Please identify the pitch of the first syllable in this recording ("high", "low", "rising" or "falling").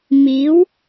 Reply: rising